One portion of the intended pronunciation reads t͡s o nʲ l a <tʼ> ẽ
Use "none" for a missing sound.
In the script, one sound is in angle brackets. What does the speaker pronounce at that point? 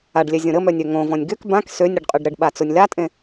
tʼ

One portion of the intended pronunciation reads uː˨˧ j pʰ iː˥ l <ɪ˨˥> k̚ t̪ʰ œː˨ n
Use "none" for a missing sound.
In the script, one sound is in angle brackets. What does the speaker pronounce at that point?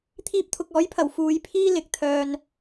ɪ˨˥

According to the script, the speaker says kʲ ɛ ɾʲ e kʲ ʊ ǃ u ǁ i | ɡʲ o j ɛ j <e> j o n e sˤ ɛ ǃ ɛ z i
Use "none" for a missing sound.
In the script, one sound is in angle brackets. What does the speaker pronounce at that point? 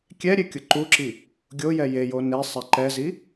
e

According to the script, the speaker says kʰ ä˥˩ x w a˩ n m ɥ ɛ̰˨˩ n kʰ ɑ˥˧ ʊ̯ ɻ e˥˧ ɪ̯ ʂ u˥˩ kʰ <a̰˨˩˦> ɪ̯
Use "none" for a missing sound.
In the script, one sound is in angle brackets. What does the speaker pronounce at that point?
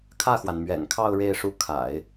a̰˨˩˦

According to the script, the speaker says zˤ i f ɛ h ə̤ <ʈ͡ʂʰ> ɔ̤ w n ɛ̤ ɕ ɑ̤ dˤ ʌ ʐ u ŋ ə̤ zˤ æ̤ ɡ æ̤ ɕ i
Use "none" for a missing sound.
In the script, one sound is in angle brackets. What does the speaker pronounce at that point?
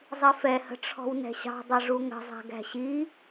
ʈ͡ʂʰ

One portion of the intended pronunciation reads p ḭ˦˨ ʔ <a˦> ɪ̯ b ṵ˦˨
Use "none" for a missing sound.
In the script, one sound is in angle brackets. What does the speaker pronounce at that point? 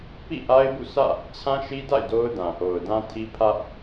a˦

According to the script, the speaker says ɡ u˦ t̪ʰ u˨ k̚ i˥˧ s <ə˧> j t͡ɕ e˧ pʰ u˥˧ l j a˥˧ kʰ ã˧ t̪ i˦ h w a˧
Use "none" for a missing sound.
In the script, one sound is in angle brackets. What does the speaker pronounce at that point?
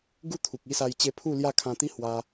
a˧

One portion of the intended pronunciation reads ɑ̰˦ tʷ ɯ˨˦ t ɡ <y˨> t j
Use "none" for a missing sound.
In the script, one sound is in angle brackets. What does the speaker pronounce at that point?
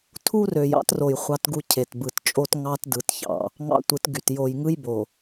y˨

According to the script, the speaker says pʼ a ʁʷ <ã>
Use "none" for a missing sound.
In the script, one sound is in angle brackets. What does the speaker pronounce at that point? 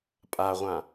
ã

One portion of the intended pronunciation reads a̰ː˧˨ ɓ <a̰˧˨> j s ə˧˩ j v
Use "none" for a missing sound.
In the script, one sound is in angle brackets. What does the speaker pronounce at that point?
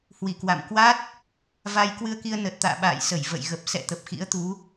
a̰ː˧˨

